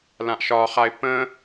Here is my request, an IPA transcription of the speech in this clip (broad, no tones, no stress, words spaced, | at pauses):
lãʔʃɒχaɪ̯ pə̃